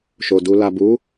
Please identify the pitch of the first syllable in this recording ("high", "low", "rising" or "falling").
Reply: low